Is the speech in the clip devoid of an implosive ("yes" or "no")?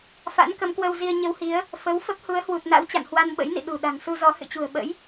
no